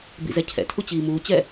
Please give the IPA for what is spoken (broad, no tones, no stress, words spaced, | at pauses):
bḭzɛcʰɛ̰tʰu t͡ɕiːmuːt͡ɕɛ